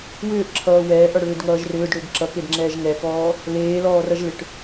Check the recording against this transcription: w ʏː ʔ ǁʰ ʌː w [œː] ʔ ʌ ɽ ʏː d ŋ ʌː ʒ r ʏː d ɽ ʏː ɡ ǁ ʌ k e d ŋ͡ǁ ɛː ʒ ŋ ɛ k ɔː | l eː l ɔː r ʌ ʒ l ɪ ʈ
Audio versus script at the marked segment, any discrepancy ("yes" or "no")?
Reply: yes